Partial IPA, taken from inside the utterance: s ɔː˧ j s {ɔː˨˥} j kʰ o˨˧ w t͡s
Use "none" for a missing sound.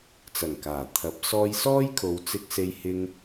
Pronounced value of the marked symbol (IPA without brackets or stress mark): ɔː˥